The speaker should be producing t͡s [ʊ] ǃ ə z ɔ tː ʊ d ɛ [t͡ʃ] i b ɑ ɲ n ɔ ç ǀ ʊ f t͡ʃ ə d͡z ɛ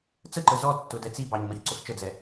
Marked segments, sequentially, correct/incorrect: incorrect: ə, incorrect: t͡s

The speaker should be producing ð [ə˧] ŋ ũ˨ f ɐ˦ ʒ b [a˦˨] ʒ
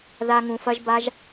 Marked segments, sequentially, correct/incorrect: incorrect: a˧, incorrect: a˦

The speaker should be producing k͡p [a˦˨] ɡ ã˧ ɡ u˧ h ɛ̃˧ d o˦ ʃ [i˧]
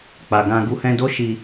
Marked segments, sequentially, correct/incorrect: incorrect: a˨, correct

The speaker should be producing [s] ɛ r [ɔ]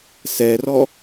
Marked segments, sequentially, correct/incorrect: correct, correct

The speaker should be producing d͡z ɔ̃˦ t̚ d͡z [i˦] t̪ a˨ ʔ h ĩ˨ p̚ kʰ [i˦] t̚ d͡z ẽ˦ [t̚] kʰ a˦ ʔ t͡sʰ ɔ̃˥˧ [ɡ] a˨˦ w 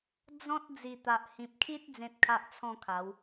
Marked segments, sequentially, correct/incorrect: incorrect: i˨˩, correct, correct, incorrect: kʰ

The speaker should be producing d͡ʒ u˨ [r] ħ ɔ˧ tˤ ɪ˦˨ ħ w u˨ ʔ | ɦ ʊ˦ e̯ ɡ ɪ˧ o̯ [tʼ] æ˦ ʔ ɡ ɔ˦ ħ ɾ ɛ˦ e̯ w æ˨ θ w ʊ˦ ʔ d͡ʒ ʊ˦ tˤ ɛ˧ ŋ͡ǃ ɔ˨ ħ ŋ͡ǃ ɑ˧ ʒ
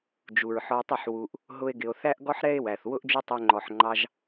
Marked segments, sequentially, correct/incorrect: incorrect: ɹ, incorrect: θ

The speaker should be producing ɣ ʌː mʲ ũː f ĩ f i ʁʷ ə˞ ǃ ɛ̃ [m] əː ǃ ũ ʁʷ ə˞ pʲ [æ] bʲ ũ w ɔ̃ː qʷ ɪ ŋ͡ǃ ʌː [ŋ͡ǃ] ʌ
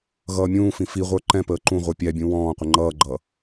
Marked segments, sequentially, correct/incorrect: incorrect: p, correct, incorrect: ɡ͡ǃ

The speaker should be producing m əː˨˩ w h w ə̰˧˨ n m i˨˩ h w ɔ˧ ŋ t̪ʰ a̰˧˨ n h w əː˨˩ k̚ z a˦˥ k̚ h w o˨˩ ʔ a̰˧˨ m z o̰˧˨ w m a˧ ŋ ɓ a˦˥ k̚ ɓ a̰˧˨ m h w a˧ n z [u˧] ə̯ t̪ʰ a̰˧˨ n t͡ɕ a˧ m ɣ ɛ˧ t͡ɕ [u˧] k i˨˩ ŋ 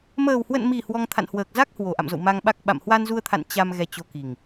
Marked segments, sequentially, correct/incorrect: correct, incorrect: o˧

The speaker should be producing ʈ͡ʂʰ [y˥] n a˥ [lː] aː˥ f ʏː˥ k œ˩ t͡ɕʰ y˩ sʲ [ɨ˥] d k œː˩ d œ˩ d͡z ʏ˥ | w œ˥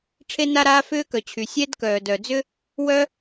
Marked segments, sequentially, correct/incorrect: incorrect: e˥, incorrect: ɾ, incorrect: ɛ˥

